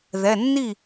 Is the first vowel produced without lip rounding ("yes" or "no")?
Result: yes